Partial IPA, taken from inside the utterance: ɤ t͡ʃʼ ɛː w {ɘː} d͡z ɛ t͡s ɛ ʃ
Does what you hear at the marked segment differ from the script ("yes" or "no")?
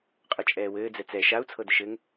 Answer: no